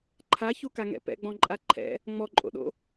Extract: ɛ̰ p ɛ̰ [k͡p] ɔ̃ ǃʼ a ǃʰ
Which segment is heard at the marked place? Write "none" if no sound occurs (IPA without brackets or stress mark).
ɡ͡b